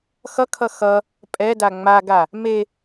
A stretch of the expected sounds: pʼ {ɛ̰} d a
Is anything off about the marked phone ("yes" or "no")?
yes